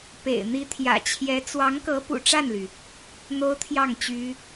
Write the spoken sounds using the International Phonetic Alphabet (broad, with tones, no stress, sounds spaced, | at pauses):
p ḛ˨˩ ɪ̯ n̪ i˧˥ t̪ʰ j ä̰˨˩ t͡ɕʰ j ɛ˧˥ t͡s w ɑ˧˥ ŋ k ɤ˧˥ p ṵ˨˩ ʈ͡ʂ a˥˩ n l y˩ | n̪ o˥ ʊ̯ t̪ʰ j ɑ˥˩ ŋ t͡ɕ y˥